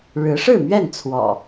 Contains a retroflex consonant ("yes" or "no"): yes